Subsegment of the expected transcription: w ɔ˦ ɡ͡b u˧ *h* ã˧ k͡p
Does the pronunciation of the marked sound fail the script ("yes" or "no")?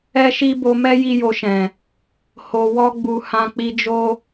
no